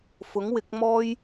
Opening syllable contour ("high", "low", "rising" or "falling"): rising